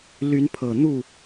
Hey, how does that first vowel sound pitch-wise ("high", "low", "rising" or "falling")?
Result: rising